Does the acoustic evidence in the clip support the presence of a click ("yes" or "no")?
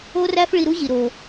no